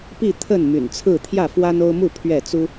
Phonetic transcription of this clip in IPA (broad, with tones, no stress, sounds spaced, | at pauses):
p i˥˨ t̪ʰ ə˥˨ n m y̰˨˩ n t͡sʰ ɹ̩˥˨ t̪ʰ j ä˥˨ f w a˦ n o˦ ʊ̯ m u˥˨ pʰ ɥ ɛ˥˨ t͡s u˦